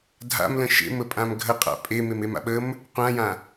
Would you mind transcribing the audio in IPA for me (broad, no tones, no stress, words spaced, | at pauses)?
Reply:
dʱa̰mlə̃ ʃḛməpʼãm ɡʱəqʼa̰ pʼememema̰ ɓəm | qʷãjã